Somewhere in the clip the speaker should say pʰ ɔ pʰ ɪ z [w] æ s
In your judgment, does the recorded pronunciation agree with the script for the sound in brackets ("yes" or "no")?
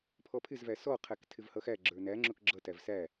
no